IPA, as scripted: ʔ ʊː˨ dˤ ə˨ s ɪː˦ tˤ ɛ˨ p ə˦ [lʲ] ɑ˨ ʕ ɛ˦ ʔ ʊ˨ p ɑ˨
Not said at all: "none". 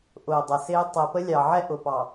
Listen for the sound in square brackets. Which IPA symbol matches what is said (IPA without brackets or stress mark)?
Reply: lʲ